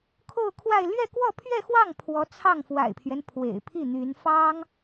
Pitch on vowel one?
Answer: falling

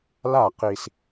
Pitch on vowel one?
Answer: falling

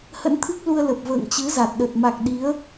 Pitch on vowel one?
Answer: rising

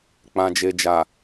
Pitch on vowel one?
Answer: low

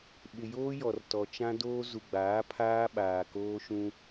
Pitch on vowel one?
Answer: low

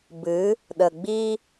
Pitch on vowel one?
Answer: rising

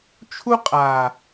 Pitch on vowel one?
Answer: high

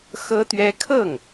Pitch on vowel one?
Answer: high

